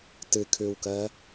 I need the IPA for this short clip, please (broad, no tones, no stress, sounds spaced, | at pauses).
t ɨ kʰ ʉ w k ɜ